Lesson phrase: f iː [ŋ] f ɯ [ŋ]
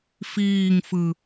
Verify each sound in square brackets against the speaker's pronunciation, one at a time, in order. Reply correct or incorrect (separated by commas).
correct, incorrect